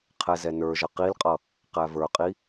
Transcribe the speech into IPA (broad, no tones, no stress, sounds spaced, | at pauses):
qʰ ɛ z ɛ n ə˞ ʒ ʌ q i l qʼ ʌ | q æ v ə˞ qʼ i